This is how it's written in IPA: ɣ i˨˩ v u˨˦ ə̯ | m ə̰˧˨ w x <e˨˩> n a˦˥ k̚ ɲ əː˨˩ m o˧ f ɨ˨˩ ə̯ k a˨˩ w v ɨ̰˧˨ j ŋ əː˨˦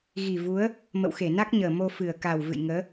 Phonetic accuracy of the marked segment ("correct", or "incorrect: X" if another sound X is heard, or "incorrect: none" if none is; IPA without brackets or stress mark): incorrect: e˧˩